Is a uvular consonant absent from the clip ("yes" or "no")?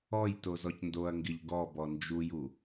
yes